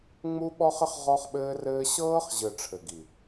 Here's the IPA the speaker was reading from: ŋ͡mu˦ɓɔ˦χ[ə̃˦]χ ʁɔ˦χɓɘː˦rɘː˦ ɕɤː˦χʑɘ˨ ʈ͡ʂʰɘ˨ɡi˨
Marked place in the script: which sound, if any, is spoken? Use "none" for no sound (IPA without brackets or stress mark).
ə˦